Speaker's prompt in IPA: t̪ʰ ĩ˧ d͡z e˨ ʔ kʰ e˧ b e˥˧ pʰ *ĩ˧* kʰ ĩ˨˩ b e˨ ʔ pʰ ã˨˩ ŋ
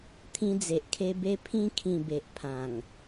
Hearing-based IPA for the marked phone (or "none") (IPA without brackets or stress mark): ĩ˧